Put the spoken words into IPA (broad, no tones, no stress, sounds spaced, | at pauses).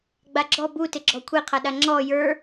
ɡ͡b a ɡ͡ǁ ɔ b u t ɪ ɡ͡ǁ ɔ kʷʰ e qʰ a ɗ a ŋ͡ǁ ɔ j ə˞